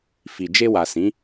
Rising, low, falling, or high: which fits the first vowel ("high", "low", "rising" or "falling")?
low